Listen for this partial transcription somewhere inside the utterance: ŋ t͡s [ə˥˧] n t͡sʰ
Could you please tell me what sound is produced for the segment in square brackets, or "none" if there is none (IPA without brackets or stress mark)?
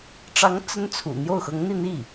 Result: ə˥